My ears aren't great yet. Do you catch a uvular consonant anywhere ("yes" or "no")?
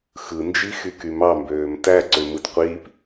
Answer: yes